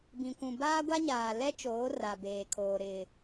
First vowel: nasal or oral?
nasal